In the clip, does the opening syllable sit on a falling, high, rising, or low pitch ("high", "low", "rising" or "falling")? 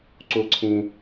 rising